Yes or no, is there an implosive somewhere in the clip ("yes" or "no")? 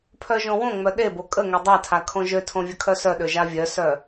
yes